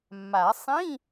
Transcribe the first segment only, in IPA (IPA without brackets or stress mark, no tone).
mː